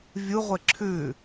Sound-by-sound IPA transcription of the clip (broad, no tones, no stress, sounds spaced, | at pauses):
vʲ u ʁʷ e ǁʰ ʉ